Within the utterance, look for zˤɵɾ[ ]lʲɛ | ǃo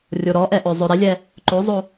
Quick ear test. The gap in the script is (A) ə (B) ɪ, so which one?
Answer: B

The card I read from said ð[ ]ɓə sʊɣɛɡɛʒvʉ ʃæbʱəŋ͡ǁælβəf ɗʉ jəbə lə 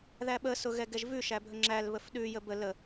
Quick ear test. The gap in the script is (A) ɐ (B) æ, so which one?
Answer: B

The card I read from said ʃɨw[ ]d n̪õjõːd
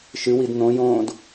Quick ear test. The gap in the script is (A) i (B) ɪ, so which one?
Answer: A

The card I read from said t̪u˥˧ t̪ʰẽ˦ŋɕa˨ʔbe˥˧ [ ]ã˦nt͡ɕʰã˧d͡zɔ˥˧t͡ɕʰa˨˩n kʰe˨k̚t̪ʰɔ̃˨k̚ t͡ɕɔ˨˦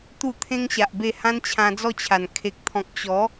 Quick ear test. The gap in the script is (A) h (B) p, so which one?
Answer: A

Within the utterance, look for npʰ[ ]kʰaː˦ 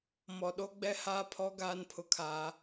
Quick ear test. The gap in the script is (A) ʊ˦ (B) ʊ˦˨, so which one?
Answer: A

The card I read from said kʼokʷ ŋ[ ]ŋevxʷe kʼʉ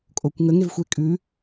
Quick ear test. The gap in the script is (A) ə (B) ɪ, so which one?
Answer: A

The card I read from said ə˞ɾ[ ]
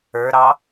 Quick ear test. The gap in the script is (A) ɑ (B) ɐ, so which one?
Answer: A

